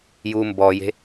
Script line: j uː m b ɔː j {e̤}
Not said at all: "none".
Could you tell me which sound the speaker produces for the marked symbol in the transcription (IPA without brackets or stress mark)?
e̤